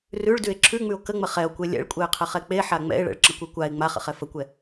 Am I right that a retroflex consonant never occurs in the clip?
no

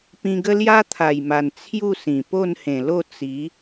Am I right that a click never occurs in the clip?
yes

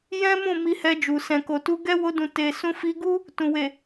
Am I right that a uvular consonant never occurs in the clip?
yes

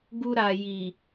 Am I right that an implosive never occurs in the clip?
yes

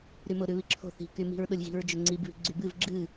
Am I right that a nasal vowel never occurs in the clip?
yes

